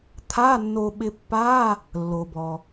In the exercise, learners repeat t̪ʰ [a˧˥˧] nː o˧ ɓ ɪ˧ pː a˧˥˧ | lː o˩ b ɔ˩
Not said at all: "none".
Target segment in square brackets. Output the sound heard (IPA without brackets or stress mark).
a˧˥˧